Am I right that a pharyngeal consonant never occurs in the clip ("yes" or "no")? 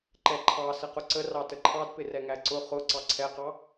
yes